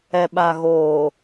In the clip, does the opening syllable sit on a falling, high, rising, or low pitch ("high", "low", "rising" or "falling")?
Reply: low